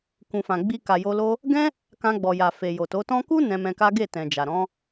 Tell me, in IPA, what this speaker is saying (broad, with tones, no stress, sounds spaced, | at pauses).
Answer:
k ũ˨ f ã˨ ɡ͡b i˧ k a˨ j o˧ l o˦ | ɡ ɛ̃˦ | k ã˧ ɡ͡b ɔ˨ j a˨ f e˨ j o˨ t o˨˦ t ɔ̃˧ k u˦ n ɛ̃˧ m ɛ̃˧ k a˦ ɡ e˦˨ t ɛ̃˨ d͡ʒ a˨ ɾ ɔ̃˨˦